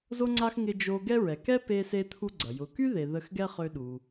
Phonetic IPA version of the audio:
z o˧ ŋ͡ǀ a˧ x ŋ ɪ˧ d͡ʒ o˧ ɡ ɛ˥ ɹ ɛ˩ k ɛ˥ p e˧ s e˧ t̪ʰ u˧ ɡ͡ǀ ɐ˩ j ʊ˩ k y˥ ð e˩ ð ə˧ x ɡ ɛ˥ χ ø˧ ɗ u˩

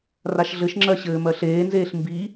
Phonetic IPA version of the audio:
r a ʃ ɮ ɘ ʃ ŋ͡ǁ ɜ ɕ ɘː m ɜ ɬ eː n z eː ɬ m b i

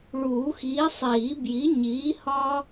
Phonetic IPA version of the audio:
ɭ uː˨˩˦ x iː˨˥ sˤ iː˨˩˦ b j i˨˥ ɲ iː˨˥ h ɒː˥

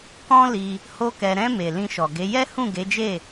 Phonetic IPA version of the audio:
k ɔ̃˦ l i˧ | h o˦ k ɛ˧ ɾ ɛ̃˧ m e˨ l ĩ˧ ʃ ɔ˨ ɡ e˨˦ j ɛ˦ h ũ˦˨ ɡ e˨˦ d͡ʒ e˦˨

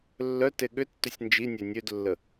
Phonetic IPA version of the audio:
lː œ t e ɠ ʏ tː ʏ sʲ n d͡ʒ i nʲ œ nʲ ø d lː ə

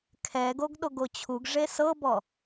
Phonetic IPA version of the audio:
kʰ ɛ ɡ o ɡ ɗ o ɡ o t͡ɕʰ u ɡ ʐ e s ɤ b ɔ

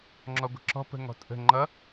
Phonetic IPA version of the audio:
ŋ͡ǁ ɔ ɡʷ ə̤ ǁ ɔ̤ p ə̤ ŋ ɔ̤ tʼ ə̤ ŋ͡ǃ ʌ

